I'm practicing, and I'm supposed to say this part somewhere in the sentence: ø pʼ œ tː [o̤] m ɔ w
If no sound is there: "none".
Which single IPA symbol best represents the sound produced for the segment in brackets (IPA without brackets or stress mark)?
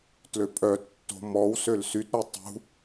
o̤